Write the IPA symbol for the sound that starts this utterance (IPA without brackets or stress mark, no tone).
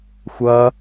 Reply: xʷ